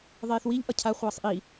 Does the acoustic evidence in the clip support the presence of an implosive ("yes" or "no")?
no